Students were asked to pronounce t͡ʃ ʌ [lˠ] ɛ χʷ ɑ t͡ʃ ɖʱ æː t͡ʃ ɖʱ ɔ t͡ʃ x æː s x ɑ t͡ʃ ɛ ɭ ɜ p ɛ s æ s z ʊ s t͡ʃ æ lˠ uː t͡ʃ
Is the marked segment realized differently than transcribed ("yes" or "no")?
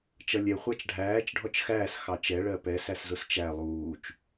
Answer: yes